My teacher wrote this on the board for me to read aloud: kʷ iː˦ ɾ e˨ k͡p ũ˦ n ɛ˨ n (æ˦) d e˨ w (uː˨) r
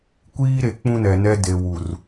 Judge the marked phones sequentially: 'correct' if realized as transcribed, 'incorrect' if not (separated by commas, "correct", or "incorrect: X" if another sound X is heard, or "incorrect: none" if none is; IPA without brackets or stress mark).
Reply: incorrect: ɛ˦, incorrect: u˨